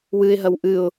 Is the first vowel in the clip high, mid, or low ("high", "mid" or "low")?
high